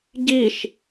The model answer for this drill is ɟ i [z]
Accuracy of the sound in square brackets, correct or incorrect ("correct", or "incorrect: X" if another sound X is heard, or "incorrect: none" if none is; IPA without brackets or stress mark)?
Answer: incorrect: ʃ